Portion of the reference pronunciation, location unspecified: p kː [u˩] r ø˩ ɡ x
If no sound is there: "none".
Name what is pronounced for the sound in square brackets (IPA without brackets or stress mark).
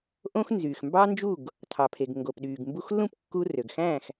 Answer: u˧